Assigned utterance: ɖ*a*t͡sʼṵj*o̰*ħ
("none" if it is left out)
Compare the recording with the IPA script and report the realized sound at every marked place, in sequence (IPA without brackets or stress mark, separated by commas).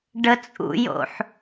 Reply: ə, o̰